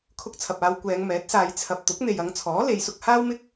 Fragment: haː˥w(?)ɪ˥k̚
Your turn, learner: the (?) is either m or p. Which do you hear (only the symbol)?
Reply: m